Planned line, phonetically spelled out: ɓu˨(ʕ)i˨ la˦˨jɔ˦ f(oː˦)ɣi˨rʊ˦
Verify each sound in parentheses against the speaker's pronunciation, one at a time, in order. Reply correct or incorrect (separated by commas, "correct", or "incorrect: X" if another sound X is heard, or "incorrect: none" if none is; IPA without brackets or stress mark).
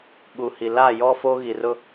incorrect: h, correct